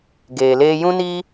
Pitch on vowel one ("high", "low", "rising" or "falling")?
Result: low